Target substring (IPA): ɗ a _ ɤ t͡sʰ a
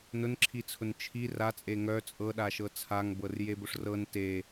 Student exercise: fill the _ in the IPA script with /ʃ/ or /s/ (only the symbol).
ʃ